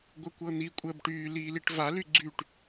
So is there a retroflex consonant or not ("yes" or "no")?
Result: yes